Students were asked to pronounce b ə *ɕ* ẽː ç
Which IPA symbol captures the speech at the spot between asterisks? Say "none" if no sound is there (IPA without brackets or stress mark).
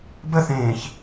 θ